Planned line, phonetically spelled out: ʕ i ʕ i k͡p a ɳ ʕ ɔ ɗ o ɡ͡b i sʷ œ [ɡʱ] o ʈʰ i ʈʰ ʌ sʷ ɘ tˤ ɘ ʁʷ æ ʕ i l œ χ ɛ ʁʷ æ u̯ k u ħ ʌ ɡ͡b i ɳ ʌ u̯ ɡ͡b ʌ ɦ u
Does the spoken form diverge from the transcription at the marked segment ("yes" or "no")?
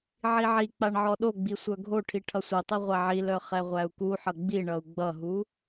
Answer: no